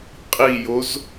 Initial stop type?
ejective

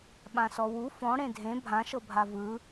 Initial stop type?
implosive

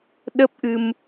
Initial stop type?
implosive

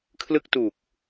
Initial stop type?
aspirated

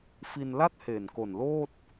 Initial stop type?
plain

